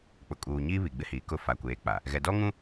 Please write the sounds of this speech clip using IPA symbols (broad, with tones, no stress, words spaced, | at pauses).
k͡pʊ˨kʼuː˨ɲiː˦ βi˨ɡ͡bɪ˦hiː˨kʊ˦˨ fa˨kʷeː˨˦k͡pa˨ | ɣɛ˨dɔ˦ ŋũ˦